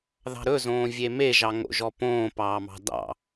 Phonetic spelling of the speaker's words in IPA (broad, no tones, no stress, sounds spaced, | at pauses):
ð ɑ̤ ɾ ɵ z õː vʲ e m e ʒ ɑ ŋ o̰ ʒ ɔ p õː p ɑː m ɑ̤ d ɑ̰